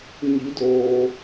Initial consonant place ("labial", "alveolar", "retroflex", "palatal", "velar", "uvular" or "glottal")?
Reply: palatal